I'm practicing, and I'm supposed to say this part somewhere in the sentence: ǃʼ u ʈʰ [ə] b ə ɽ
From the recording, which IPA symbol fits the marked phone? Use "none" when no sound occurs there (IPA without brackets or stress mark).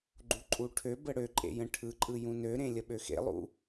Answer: ø